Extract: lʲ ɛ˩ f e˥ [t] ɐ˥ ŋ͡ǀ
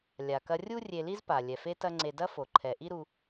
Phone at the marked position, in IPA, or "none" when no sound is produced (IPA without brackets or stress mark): t